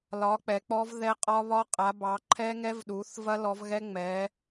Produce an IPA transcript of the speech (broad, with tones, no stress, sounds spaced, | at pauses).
l ɒ˨˦ k͡p ɛ˨˦ k͡p ɔ˦˥ v ð ɛ˦˥ qʼ ɒ˦˥ β ɒ˦˥ qʼ a˨˦ b ɑ˨˦ ǃʰ ɛ˦˥ ŋ ɛ˦˥ v ɗ u˨˦ θ v ɐ˦˥ l ɔ˨˦ v ɣ ɛ˦˥ ŋ͡m ɛ˨˦